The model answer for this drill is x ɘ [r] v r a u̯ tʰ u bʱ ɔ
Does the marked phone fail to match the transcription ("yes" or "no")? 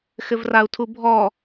yes